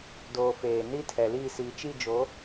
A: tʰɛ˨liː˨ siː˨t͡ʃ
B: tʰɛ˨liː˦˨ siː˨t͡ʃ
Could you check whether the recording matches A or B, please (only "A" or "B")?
B